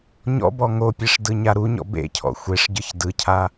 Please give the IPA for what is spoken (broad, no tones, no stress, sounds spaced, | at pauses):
ɲ ɔ̰ b ɔ ŋ o pʲ e ʂ d ɯ ɲ a ɾ u ɲ ɔ̰ b ḛ cʰ ɔ̰ xʷ e ʂ ɟ ɯ ç d ɯ cʰ a